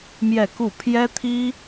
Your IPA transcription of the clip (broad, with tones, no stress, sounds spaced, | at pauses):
m j ɛ˥˧ k u˥˩ pʰ j ɛ˥ t̪ʰ i˥